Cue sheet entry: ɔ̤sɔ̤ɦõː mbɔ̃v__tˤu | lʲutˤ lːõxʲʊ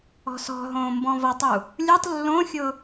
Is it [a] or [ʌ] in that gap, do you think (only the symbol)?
ʌ